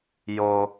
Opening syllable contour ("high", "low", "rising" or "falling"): high